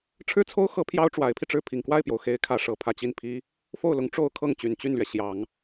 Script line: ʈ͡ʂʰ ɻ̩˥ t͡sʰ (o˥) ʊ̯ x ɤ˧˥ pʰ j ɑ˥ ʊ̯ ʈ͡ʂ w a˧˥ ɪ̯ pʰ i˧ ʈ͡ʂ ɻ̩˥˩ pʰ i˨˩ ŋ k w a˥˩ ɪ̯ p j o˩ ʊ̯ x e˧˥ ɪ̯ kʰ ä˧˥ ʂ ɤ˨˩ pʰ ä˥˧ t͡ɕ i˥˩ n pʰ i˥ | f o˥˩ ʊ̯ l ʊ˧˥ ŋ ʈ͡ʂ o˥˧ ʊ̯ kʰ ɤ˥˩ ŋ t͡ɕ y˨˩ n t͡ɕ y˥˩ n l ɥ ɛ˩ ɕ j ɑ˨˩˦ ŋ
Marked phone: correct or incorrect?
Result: correct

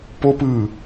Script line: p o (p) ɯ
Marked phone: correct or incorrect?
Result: correct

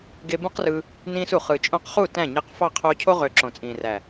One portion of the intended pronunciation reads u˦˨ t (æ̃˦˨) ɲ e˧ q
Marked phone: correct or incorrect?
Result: correct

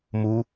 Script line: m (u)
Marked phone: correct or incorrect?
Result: correct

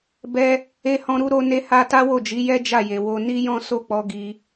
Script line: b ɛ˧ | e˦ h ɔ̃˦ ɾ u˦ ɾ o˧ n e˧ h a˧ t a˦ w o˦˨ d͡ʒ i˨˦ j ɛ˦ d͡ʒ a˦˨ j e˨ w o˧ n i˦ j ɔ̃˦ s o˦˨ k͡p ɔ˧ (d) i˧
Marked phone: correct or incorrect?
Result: incorrect: ɡ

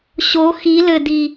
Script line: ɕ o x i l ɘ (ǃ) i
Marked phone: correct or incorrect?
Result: incorrect: d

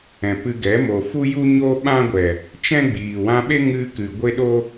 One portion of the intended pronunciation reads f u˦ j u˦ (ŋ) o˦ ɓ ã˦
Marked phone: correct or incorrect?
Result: incorrect: ɲ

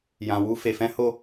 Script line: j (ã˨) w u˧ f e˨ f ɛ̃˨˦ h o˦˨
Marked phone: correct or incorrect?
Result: correct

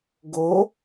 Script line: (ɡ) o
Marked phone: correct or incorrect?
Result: correct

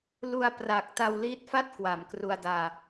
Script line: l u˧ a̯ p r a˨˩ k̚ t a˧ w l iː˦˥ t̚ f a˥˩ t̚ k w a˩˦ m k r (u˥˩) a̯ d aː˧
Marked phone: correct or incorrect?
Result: incorrect: u˧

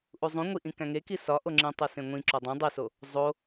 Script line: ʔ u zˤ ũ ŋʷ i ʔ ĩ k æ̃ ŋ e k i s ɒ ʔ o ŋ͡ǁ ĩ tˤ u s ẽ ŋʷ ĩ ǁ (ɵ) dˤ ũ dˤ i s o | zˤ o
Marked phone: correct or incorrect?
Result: incorrect: o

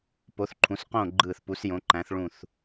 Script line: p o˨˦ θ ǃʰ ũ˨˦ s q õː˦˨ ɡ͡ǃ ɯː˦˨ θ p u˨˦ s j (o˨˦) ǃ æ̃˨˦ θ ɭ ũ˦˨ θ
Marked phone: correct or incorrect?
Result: incorrect: õ˨˦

